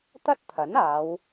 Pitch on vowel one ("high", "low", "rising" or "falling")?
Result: high